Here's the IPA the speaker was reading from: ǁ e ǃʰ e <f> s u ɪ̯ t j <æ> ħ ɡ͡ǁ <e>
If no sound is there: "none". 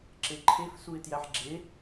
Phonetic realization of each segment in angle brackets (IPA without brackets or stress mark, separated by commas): f, æ, e